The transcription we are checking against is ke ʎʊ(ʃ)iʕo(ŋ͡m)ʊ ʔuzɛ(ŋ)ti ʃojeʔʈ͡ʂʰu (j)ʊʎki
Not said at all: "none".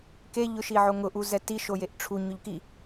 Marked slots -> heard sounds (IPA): ʃ, ŋ, none, ɲ

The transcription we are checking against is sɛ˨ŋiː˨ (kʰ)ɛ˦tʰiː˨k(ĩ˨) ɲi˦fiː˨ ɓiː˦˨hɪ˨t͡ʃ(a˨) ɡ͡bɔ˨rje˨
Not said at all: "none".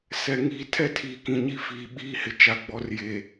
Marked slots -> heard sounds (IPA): tʰ, ĩ˨, a˨

